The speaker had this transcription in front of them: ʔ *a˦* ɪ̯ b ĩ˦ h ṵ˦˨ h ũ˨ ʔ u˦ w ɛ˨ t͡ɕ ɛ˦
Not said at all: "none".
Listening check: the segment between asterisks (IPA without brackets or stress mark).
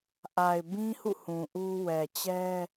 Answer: a˨